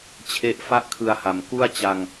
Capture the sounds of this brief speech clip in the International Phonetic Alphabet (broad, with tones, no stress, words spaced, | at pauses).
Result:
t͡ɕʰe˦˥ʔfa˥˩ʔkʰɯ˧a̯ha˨˩m ku˥˩a̯t͡ɕa˧ŋ